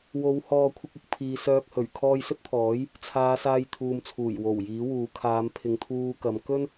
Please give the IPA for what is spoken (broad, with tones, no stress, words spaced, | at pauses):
wo˨˧w hɔː˧kʷʰɪ˧k̚ʊ˨k̚pʰiː˨ sœː˧k̚hɵ˨˩ɥ kʰɔː˧jsɵ˥t̚t̪ʰɔː˨˥j | t͡sʰaː˨˧ saː˧jt̪ʰuː˨m t͡sʰuː˨˩jwo˨˩wjiː˨˥wuː˨ kʰaː˨˧m pʰɪ˨ŋt̪ʰuː˧kɐ˨˧m kɵ˥n